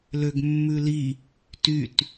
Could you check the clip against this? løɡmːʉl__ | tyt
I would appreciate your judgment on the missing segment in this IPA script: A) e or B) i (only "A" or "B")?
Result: B